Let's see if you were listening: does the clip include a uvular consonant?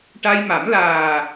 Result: no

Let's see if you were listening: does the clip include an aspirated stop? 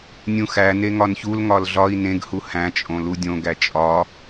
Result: no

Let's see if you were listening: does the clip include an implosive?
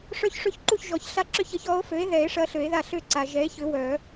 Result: no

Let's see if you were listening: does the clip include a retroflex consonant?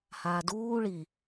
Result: yes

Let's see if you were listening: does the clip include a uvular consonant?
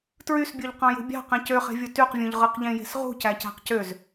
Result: yes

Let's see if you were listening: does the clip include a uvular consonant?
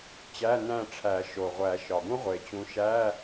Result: yes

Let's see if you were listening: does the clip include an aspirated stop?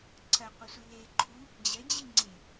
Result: yes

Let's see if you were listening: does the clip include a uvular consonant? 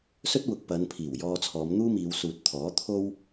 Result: no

